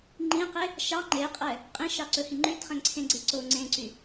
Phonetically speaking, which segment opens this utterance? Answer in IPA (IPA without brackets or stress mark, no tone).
ŋ͡ǃ